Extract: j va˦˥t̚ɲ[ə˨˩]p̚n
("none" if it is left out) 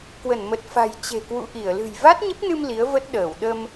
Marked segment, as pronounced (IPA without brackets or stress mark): ə˦˥